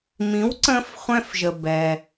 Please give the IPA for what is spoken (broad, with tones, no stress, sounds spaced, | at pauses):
m ĩ˩˥ w ǀ ə̃ː˧ f χʷ ɛ̃˧ f ʒ ə˩ b ɛ˩